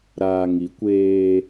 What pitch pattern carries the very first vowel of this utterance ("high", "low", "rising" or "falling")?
low